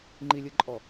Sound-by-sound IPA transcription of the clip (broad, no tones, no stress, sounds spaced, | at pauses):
ŋ͡ǃ i lʲ ɯ ǃʼ ɔ